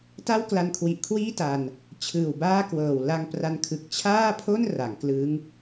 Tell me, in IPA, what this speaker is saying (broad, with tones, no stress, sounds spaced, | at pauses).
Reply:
t a˥˩ w k l a˧ n kʰ w i˨˩ ʔ kʰ w iː˥˩ t a˧ n | t͡ɕʰ ɯː˨˩ w b aː˥˩ k w ɤː˨˩ w l a˧ ŋ p r a˧ n kʰ ɯ˨˩ k̚ t͡ɕʰ aː˥˩ pʰ o˥˩ n r a˩˦ ŋ k l ɯː˦˥ ŋ